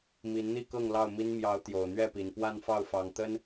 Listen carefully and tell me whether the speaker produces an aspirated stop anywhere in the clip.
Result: no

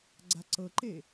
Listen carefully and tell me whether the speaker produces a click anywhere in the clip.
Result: yes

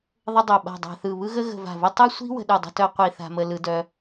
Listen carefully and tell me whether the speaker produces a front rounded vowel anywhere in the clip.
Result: yes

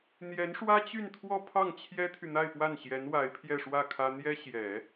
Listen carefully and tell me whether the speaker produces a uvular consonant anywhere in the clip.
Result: no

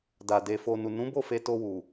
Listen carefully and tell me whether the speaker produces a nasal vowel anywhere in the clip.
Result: yes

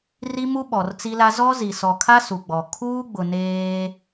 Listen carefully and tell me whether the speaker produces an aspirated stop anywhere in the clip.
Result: yes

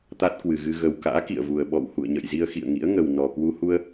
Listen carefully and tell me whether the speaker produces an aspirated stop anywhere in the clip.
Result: no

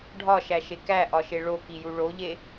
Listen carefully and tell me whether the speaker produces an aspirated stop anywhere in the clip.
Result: no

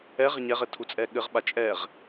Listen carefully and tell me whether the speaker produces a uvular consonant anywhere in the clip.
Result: yes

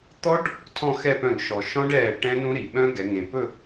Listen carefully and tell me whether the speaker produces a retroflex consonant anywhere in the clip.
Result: yes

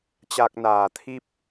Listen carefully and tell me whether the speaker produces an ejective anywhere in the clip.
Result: no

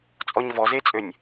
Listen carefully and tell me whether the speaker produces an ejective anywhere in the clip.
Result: yes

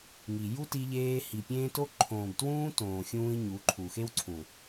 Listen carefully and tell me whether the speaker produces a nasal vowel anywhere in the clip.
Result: yes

